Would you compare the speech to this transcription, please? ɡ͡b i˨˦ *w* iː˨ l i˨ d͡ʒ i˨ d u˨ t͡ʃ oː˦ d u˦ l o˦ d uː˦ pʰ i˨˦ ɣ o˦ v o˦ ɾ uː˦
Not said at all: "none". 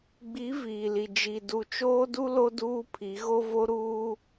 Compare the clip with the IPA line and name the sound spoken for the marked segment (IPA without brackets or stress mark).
v